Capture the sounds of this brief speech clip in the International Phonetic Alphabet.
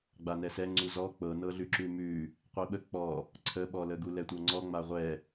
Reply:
ɡ͡b a n ɛ s ɛ ŋ͡ǀ u z ɔ k͡p ɤ n ɤ ɮ ʉ ǁ ʉ m ʉ | qʷ i ɓ ə k͡p ɔ | ǀʰ ə ɓ ɔ l ə ɡ u l ɛ tʷ ɤ ŋ͡ǀ ɔ ŋ͡m a ʁʷ ɛ

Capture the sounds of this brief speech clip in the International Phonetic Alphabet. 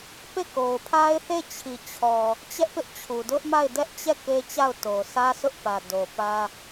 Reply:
p e˦˨ k o˨ ʊ̯ pʰ a˦ ɪ̯ θ e˦˨ t͡ɕʰ i˨ t͡ɕʰ ɔ˨ | t͡ɕ ɛ˦ ʔ p ɪ˦ ʔ t͡ɕʰ u˨ d ʊ˦ ʔ m a˦˨ ɪ̯ d ɛ˦ ʔ t͡ɕ ɛ˦˨ k e˦ t͡ɕ a˦˨ ʊ̯ t o˨ sʰ ä˦ sʰ ʊ˦ ʔ p ä˨ d o˨ p ä˦

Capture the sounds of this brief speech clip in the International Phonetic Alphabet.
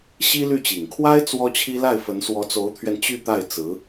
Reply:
ɕ i˥ l y˥˩ t͡ɕ i˨˩ ŋ kʰ w a˥ ɪ̯ t͡s w ɔ˥ t͡ɕʰ i˥ l a˥˩ ɪ̯ f ə˧˥ n s w ɔ˧˥ t͡s o˧˥ ʊ̯ t̪ʰ ɥ ɛ˧ n t͡ɕ y˥˧ t̪ a˥˩ ɪ̯ t͡s ɹ̩˧˥

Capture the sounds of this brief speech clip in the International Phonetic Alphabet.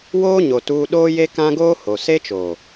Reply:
w oː˦ ɲ o˨ t uː˦ ɗ oː˦ j e˦ k ã˦ ɡ oː˦ h o˨ s e˦ t͡ʃ oː˨

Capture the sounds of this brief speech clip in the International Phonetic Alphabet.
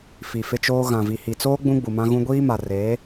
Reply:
f i˨ f ɪ˦ t͡ʃ oː˦ ɣ ã˨ v i˨ h i˨ t͡s oː˦ ɡ͡b ũ˦ ɡ͡b u˨ m ã˦ ɣ ũ˦ ɡʷ iː˦ m a˨ r eː˨˦

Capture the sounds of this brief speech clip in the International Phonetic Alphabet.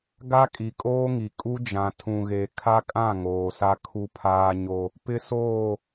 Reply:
ɡ a˦ kʼ i˨ kʼ oː˦ ŋ i˨ kʼ u˦ d͡ʒ ã˨ tʰ ũ˨ ɣ e˨ kʰ a˦ kʼ ã˦˨ ŋ oː˨ s a˦ kʰ u˦ pʰ aː˦ ɲ o˦ | p ɪ˦ s oː˦˨

